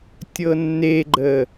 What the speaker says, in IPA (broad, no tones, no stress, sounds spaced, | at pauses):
tʲ ɤ nː e ɡ͡ǃ ə